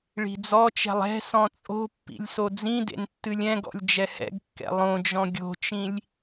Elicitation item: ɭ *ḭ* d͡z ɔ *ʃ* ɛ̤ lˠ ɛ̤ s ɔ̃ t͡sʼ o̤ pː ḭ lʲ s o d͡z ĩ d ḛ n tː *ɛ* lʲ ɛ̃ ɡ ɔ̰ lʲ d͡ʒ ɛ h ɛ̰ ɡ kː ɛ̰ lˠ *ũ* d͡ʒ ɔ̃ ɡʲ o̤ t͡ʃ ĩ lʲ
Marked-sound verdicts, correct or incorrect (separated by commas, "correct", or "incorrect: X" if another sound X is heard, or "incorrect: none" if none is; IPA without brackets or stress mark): incorrect: i̤, incorrect: t͡ʃ, incorrect: ɨ, incorrect: õ